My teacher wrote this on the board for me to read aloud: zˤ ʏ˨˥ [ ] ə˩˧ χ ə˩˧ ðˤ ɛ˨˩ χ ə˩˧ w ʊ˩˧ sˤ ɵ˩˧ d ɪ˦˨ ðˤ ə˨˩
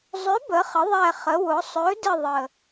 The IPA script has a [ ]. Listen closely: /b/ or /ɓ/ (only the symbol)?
b